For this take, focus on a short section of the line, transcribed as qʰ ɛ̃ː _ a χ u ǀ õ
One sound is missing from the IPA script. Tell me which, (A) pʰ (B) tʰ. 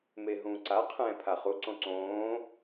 A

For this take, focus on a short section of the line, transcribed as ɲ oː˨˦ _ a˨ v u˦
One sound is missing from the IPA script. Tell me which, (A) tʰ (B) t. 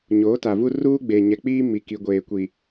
B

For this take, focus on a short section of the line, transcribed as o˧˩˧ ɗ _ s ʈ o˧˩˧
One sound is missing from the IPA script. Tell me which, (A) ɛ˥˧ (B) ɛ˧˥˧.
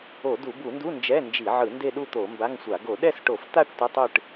A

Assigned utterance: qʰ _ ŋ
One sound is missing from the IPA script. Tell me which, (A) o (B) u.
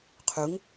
B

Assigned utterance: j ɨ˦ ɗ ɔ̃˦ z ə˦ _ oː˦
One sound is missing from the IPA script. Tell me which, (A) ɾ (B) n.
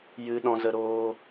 A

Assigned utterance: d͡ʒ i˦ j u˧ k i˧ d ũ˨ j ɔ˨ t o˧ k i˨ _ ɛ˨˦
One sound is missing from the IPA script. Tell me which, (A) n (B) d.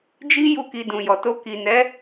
A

